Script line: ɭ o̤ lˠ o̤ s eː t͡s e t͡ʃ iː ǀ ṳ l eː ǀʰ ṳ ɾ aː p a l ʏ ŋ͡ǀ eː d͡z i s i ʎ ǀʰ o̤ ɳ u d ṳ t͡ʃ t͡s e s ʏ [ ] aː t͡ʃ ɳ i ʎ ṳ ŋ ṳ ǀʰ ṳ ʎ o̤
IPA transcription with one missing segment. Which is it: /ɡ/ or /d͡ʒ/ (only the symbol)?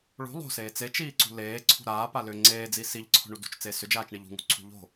d͡ʒ